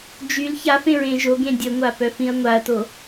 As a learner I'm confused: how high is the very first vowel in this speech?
high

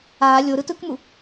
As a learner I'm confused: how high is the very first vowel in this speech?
low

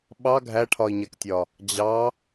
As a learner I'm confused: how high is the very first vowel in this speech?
low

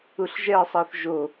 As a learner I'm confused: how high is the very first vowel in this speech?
high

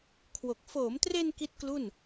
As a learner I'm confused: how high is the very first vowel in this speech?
mid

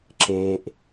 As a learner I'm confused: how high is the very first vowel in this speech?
mid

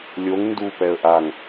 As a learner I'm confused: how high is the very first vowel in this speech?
mid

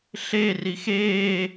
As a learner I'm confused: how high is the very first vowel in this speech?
mid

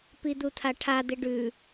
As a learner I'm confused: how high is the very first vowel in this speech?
high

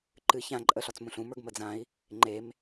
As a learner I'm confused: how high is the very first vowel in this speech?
high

